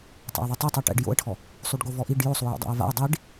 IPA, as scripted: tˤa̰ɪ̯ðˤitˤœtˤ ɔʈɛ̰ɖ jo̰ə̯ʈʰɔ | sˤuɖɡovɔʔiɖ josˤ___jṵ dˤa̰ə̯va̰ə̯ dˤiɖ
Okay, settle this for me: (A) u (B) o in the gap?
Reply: A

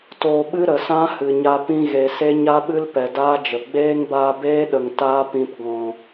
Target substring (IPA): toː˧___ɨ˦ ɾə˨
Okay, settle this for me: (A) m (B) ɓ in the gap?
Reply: B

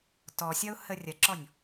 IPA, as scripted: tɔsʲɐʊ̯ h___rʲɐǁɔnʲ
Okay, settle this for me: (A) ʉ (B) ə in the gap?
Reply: B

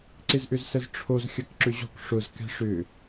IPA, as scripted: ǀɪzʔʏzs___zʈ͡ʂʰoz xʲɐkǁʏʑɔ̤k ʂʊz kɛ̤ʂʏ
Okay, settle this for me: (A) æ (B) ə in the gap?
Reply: B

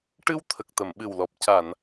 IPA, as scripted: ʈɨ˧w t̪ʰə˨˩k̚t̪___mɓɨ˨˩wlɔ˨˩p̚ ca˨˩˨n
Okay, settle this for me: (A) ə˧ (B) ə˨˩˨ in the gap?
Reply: B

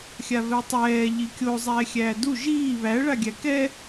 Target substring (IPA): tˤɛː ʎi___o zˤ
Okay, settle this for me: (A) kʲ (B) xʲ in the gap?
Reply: A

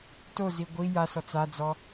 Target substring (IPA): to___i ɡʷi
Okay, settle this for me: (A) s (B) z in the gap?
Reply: B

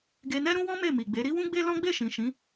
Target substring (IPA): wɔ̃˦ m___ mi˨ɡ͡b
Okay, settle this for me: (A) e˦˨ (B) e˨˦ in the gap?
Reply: A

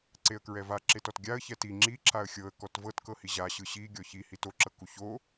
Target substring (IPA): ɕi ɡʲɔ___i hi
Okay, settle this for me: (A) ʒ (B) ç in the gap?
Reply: B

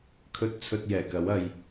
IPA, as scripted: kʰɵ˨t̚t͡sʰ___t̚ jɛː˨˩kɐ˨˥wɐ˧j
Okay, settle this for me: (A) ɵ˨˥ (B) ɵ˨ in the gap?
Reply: B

